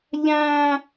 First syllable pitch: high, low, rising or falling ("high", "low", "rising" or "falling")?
low